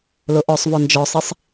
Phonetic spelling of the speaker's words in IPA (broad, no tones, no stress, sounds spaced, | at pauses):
l ʊ ʔ ɔ sˤ v ɔ n d͡ʒ ɔ sˤ i sˤ